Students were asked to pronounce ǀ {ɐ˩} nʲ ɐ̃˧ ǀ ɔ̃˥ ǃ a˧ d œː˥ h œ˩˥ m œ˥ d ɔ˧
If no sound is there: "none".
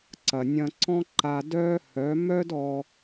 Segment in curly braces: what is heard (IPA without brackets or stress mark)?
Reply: ɐ˩